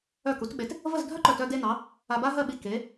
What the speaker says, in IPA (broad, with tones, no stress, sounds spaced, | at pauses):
œ˧˩ k u˩˧ t ɓ e˩˧ t | v ə˥˧ z dʱ œ˥ ǃ œ˧˩ t œ˧ d e˧ n ɑ˩˧ | a˧ b a˥ ɦ ɜ˥˧ ɓ i˧˩ k e˩˧